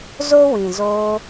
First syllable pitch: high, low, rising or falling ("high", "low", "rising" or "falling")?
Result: high